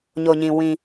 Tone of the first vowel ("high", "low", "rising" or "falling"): low